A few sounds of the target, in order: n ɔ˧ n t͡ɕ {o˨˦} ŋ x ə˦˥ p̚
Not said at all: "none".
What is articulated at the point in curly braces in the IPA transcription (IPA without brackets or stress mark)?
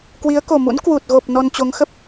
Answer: o˨˦